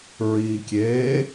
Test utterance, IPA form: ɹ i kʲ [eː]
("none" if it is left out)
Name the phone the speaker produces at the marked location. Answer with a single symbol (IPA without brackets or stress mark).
eː